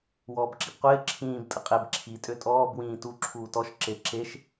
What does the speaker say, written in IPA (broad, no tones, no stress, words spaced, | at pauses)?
wɔːbǁibqʷɪː ǁʰĩːb tʼəqʼeb ǁʰi tʼøtʼɔːb wĩːtu ǁʰuːtɔʃ ǁeǁeʃ